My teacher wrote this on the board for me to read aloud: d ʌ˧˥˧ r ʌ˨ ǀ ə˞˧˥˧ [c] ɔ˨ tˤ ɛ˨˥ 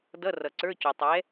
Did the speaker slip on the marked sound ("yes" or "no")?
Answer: no